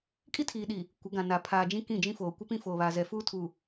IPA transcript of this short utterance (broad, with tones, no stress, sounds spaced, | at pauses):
kʼ i˦ tʰ iː˨ ɗ i˨ | kʷ ɪ˨˦ ɡ ã˨ n a˨ pʰ aː˨ d͡ʒ ĩ˦ k ĩ˦˨ d͡ʒ ĩ˦ f oː˨ kʷ ɪ˦ p ĩ˦ f oː˨ β aː˨ z ɛ˨ f uː˦ tʰ u˨